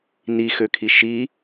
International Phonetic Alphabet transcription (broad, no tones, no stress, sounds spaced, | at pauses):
n i x ø kʰ i ʃ i